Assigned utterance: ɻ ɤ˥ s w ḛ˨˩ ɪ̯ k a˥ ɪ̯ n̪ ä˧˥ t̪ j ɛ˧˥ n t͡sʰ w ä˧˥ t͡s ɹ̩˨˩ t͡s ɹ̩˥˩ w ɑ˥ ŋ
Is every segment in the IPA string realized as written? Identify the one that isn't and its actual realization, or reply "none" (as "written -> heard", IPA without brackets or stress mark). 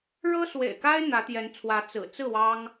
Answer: none